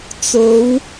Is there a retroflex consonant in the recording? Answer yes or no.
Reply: no